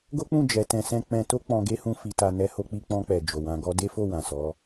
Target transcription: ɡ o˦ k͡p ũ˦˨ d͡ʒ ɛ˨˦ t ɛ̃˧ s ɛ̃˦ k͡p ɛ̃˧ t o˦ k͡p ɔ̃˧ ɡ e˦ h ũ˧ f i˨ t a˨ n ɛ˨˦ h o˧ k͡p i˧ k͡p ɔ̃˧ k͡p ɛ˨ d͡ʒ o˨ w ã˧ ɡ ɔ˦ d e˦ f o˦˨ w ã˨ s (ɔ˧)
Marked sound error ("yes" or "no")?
yes